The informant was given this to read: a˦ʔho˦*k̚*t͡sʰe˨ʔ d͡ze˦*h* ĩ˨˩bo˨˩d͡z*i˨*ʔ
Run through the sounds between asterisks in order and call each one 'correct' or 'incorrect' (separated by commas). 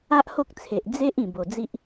correct, incorrect, incorrect